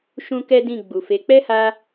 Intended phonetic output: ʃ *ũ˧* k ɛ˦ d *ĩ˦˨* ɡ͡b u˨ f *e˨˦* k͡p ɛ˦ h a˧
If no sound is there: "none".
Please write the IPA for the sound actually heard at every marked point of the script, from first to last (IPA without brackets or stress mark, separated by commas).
ũ˦, ĩ˦˨, e˨˦